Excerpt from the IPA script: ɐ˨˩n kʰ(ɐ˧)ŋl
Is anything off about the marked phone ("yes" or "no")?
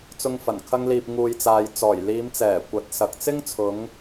no